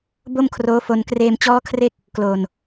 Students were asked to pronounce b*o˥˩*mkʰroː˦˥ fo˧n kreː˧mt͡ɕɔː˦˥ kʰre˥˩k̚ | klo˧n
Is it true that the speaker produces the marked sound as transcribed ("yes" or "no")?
yes